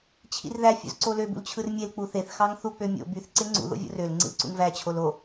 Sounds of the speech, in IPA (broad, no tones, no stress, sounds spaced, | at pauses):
t͡ɕʰ ḭ r ð æ fʲ ṵ z ǀ o l ø b ṵ l t͡ɕʰ ɯ r mʲ e l k͡p u θ e θ x ɑ ŋ θ u k͡p ø mʲ o̰ b y θ ǀ e ŋ͡ǀ ṵ ð o̰ vʲ o̰ r ø l ŋ͡ǀ ḭ l ǀ ṵ ŋ v æ t͡ɕʰ o l o